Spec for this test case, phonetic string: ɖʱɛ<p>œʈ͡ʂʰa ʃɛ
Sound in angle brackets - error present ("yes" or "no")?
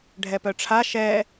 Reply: no